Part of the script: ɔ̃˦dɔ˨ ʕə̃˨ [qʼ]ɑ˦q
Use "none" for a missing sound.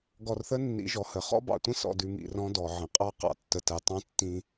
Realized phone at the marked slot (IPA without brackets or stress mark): qʼ